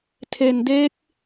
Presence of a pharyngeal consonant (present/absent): absent